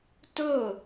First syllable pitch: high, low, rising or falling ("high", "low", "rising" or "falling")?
falling